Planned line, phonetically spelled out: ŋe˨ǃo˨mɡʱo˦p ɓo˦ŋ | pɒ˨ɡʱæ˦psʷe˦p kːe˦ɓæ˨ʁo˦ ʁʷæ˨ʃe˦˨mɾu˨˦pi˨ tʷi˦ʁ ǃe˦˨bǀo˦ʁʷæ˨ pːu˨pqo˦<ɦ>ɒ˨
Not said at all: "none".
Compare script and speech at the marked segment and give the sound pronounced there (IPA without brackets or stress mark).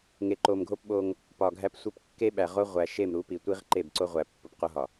ɦ